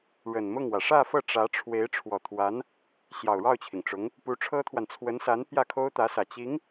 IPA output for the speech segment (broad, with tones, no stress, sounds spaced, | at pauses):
ɻ ə˨˩ n m ʊ˥˩ ŋ w ä˩ ʂ ä˥˧ f ɤ˥˩ ʈ͡ʂ ä˧˥ ʈ͡ʂʰ w e˧˥ ɪ̯ ʈ͡ʂʰ w ɔ˨˩ t̪ʰ w a˧˥ n | ɕ j ɑ˨˩ ʊ̯ ɻ ɑ˥˩ ʊ̯ t͡ɕʰ i˩ ŋ ʈ͡ʂ ʊ˧˥ ŋ | p u˧˥ ʈ͡ʂʰ ɤ˥ t̪ʰ w a˨ n t͡sʰ w ə˧˥ n s a˧˥ n p j ä˥˩ kʰ o˥ ʊ̯ t̪ ä˧˥ s ä˨˩ t͡ɕ i˧˥ ŋ